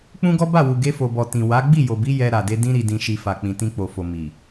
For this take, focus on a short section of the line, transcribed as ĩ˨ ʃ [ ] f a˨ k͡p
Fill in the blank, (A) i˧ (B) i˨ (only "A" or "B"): B